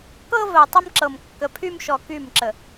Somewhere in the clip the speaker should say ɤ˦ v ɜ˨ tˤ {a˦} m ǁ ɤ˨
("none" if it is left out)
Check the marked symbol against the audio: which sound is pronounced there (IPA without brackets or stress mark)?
ə˦